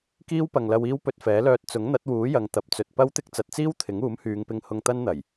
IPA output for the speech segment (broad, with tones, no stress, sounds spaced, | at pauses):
k iː˥ w p ɐ˨ ŋ l ɐ˧ w iː˥ w p ɵ˧ t̚ f ɛː˨˥ l œː˧ t̚ t͡s ʊ˨˥ ŋ n̪ ɐ˨˥ t̚ w uː˨˥ j ɐ˨˧ ŋ t̪ ɐ˨˥ p̚ t͡s ɵ˨ t̚ p ɐ˥ w t̪ ɪ˥ k̚ t͡s ɐ˨˥ t̚ t͡s iː˥ w t̪ʰ ɪ˨˥ ŋ uː˨˥ m h yː˨˧ ŋ p ɪ˧ ŋ h ʊ˧ ŋ t̪ ɐ˥ n n̪ ɐ˨˩ j